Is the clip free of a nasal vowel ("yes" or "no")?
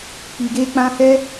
no